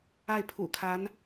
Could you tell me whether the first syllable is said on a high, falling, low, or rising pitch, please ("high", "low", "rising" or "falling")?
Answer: falling